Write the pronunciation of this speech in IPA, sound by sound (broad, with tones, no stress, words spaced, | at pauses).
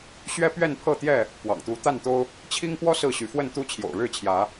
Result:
ɕɥɛ˦ pɥɛ˥˨npʰɤ˥˨t̪jɛ˥˨ | pwɑ̰˨˩ŋt̪u˨˦ t̪a˥˨nt̪o˦ʊ̯ | t͡ɕʰi˦ŋpwɔ˦ sɹ̩˥˨ɕy˨˦ fwə˥˨nt̪u˦ t͡ɕʰjo̰˨˩ʊ̯ɻɻ̩˥˨t͡ɕʰjä˨˦